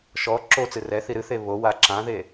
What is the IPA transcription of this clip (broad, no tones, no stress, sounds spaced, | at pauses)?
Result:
ʃ ɔ ǁ o t͡s ɨ r ɛ θ i ɾ ɨ θ e β o w a ǁ ã ð e